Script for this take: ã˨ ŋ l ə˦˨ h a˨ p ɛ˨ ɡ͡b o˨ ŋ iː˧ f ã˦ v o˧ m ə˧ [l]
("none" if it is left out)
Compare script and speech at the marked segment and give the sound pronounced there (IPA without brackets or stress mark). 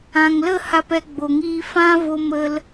l